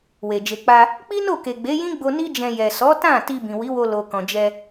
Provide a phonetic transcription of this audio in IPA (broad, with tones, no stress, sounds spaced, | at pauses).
w e˨ d͡ʒ e˨ k͡p a˧ | k͡p i˦ n o˦˨ k e˨ ɡ͡b e˨˦ j ĩ˦ ɡ͡b o˧ n i˦ d͡ʒ ɛ̃˧ j ɛ˨ s ɔ˨˦ t ã˦˨ t i˧ b ĩ˨ w i˨˦ w o˧ l o˨ k ɔ̃˨ d͡ʒ ɛ˧